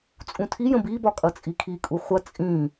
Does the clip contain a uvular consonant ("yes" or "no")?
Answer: yes